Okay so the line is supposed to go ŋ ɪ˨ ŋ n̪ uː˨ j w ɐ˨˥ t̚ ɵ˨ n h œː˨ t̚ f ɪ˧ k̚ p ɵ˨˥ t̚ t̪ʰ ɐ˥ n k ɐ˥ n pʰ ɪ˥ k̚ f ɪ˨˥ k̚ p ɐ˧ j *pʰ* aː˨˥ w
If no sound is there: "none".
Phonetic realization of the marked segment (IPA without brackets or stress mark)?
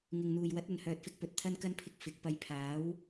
pʰ